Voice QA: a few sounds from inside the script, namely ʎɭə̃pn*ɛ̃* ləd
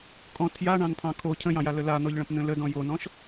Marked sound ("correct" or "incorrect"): incorrect